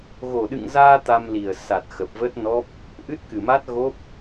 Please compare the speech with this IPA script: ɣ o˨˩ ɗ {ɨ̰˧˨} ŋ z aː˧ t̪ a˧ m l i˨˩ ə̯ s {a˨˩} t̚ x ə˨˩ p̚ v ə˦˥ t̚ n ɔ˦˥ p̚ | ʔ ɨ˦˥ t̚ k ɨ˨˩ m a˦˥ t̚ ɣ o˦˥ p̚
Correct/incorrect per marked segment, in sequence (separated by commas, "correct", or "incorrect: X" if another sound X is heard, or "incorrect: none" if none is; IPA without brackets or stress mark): correct, correct